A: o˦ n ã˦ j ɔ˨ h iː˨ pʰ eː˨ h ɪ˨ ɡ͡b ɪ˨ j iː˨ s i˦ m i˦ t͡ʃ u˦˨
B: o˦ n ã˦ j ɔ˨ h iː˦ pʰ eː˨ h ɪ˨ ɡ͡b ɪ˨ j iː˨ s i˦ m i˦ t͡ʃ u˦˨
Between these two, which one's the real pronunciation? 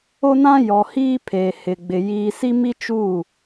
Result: B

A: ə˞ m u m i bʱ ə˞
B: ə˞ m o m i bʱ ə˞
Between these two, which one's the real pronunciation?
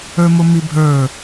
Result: B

